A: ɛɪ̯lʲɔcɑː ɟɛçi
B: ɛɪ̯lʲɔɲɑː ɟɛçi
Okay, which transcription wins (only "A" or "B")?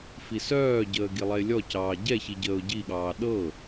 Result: A